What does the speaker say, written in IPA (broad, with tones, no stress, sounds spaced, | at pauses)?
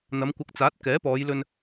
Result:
n̪ ɐ˨˧ m kʷ ɐ˨ k̚ t͡s aː˨˥ t̚ k ɛː˨˥ p ɔː˨˧ j l ɵ˧ n